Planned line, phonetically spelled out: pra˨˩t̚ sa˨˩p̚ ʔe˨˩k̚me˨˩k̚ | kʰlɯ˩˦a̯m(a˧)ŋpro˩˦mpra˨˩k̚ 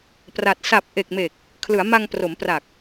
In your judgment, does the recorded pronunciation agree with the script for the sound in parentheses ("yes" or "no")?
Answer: yes